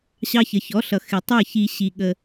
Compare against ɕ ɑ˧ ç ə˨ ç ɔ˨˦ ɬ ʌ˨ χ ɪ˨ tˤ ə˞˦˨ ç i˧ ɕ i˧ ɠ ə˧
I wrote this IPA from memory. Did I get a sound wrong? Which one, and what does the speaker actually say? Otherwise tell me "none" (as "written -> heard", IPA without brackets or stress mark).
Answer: χ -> x